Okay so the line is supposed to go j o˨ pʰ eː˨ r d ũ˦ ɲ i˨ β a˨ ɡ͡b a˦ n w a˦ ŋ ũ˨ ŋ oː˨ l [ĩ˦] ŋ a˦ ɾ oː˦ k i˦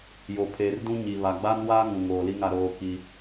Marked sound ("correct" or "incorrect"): incorrect